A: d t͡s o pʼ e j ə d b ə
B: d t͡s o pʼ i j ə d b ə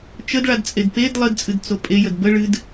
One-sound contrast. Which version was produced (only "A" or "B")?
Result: A